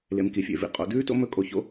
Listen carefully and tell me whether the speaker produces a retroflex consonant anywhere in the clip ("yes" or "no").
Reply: no